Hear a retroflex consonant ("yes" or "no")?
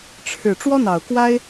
yes